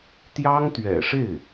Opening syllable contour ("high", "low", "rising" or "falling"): high